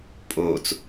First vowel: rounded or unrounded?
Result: rounded